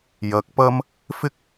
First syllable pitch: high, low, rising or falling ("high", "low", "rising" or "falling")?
rising